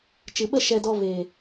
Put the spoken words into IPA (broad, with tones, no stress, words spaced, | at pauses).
t͡ʃɨ˨ɓə˦˨ ʃɛ˨dɔ˨ ve˨